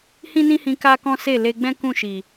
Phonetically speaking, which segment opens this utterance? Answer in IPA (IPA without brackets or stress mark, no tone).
h